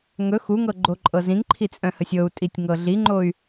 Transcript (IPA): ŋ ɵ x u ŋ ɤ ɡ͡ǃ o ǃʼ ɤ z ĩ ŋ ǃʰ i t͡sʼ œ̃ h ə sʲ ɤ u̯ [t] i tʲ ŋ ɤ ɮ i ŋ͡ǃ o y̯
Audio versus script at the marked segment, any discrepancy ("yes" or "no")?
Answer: yes